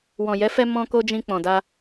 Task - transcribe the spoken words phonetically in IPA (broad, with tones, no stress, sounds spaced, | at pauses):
w ɔ̃˨ j ɛ˨˦ f ɛ˧ m ɔ̃˧ k o˧ d͡ʒ ĩ˧ k͡p ɔ̃˨ d a˧